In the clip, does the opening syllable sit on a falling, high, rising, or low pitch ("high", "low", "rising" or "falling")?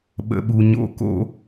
high